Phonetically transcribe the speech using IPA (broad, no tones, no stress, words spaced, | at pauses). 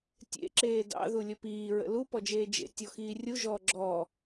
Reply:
tʲḛ ǁeːdɑ̰ ðulʲəpiː ɹə̰lu pɔd͡ʒeːd͡ʒḛ tʲɔxiːrʲu ʒɔːɡ͡ǁɔ